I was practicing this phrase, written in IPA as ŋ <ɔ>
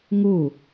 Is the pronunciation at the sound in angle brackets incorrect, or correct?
incorrect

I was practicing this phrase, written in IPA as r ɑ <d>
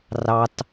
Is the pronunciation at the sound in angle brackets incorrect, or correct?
incorrect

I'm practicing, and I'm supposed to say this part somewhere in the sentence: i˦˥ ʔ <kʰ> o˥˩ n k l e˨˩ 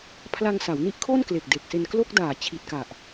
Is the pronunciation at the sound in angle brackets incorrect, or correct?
correct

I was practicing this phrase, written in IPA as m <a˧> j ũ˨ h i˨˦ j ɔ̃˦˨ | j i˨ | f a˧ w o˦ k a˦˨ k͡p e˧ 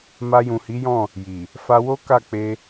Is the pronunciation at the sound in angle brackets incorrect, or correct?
correct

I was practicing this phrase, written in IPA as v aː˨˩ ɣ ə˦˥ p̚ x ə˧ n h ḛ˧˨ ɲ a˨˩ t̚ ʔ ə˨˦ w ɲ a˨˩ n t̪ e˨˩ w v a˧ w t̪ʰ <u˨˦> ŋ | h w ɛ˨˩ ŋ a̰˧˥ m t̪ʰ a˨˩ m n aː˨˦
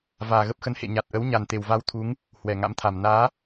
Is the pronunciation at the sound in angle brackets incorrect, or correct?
correct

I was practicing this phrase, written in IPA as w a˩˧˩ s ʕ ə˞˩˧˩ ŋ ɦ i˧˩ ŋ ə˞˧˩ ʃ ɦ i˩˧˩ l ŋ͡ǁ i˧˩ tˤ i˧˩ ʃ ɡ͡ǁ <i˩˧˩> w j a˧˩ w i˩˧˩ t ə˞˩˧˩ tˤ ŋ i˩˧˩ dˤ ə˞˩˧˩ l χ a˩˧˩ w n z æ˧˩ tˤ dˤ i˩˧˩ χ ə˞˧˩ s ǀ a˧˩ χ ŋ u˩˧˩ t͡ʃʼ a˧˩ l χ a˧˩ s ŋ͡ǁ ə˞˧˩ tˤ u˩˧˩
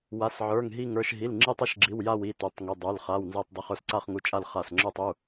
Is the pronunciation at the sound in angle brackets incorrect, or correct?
correct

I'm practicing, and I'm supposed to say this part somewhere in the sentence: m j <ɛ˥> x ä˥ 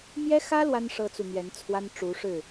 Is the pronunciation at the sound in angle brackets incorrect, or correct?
correct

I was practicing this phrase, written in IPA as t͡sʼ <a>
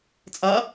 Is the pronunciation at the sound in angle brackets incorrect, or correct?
correct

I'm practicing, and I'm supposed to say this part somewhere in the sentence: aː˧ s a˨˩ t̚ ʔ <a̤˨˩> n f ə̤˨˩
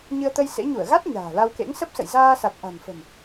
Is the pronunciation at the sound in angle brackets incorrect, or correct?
correct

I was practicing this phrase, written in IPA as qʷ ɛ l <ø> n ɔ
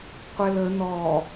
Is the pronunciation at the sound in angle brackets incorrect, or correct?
incorrect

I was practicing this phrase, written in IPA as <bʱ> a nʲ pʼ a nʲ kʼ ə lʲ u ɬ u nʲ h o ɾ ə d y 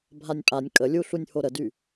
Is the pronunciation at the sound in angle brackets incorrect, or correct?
correct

